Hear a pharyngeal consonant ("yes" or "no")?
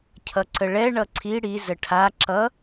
no